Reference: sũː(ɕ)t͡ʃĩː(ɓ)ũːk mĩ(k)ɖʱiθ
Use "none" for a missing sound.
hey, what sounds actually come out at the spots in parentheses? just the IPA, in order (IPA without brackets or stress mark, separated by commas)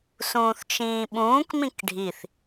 θ, ɓ, k